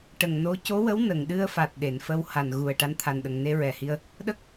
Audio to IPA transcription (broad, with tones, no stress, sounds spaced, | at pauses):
ʈ ə˨˩ ŋ n o˧˥ c o˧˥ w ə˧˥ w n ə˨˩˨ ŋ ɗ ɨ˧ ə̯ f a˨˩ t̚ ɗ e˨˩˨ n f ə˧ w h a˨˩ n ɣ u˨˩ ə̯ ʈ a˧˥ n t̪ʰ a˨˩ n ɗ ə˨˩ ŋ n e˧ ɹ ɛ˨˩ h i˧ ə̯ | ɗ ə˦˥ k̚